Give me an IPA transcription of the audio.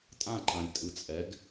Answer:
tʼãǃãlʲtʼɯ t͡sʼɛɡ

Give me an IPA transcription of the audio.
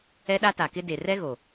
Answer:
ɛ˦ɗa˦ ta˨kɪ˦ de˨rɛ˦ɣo˨

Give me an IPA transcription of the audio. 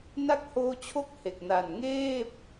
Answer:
na˦˥k̚hoː˧t͡ɕʰo˦˥k̚ he˨˩k̚ na˨˩n ŋeː˥˩p̚

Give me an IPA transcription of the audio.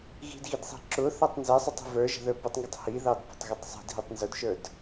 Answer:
ɣi̤dɣidsˤi̤ ǁʊθætˤ nzɛsˤʊtˤi̤ və˞ʒə̤ðə˞ pətˤŋɡʊtˤ hiðɑdpə̤tˤɣʊtˤ sˤi̤dɦitˤ nzʊdʃə˞d

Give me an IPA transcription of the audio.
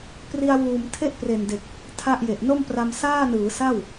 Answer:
pri˧a̯wuː˨˩m tʰe˥˩ʔpre˨˩nde˨˩k̚ | tʰa˥˩ʔje˨˩ʔ no˥˩mpra˧m saː˥˩nɯː˩˦ sa˥˩w

